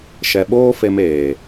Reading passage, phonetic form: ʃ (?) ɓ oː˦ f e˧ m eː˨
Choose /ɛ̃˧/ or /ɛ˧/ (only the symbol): ɛ˧